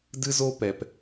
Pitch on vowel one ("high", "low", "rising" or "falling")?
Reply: high